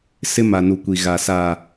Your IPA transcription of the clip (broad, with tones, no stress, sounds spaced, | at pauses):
s ɪ˦ m a˨ n u˨ kʷ i˨ ɣ a˨ s aː˨